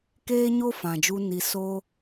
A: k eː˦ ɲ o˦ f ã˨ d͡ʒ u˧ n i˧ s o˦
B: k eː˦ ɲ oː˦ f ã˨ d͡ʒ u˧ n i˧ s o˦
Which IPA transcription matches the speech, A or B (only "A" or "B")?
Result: A